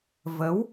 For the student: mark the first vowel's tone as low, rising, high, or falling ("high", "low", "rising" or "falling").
rising